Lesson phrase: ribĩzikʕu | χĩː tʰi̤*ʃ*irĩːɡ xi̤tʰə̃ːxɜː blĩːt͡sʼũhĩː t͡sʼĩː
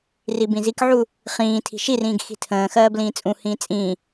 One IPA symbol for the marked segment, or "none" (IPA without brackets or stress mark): ʃ